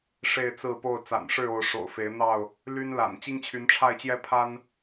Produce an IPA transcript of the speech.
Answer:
ʂ e˥˨ ɪ̯ t͡s ɹ̩˥˨ p o˥˨ ʊ̯ t͡s a̰˨˩ n ʂ ɻ̩˥˨ o˨˦ ʊ̯ ʂ o̰˨˩ ʊ̯ f e˨˦ ɪ̯ n̪ ɑ˥˨ ʊ̯ | l y˦ n l a̰˨˩ n t͡ɕ i˦ ŋ t͡ɕʰ y˨˦ n ʈ͡ʂʰ a˥˨ ɪ̯ t͡ɕ j ɛ˦ pʰ a˦ n

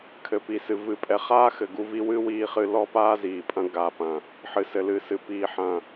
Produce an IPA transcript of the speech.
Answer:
kʰ ɘ˨ p i˨ s ɨ˨ v ɨ˨ pʼ ɛ˨ χ aː˦ x ɘ˨ ɡ u˦ v i˦ w ɨ˦ w iː˦ χ ɨ˦ l ɔ˦ p aː˦ z iː˨ pʼ ɐ̃˦ ɡ a˨ p ɐ̃˨ | ħ ɨ˨ s ɘ˨ l ɨ˨ s ɨ˨ p iː˨ ħ ɐ̃˨

